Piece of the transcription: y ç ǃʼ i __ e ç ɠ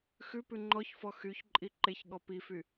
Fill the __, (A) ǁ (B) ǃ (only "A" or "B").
B